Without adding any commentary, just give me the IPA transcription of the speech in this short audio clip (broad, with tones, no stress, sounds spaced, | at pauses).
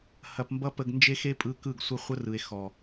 h ɐ˧ p m b ʌ˦ p ə˧ ɡ n d͡ʒ e˦ x e˦ pʼ ɯ˧ k ɯ˦˨ ɡ sʷ ɐ˦ χʷ ə˦ r ɯ˨ e̯ x ɔ˨